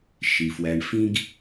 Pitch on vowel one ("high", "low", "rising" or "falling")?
low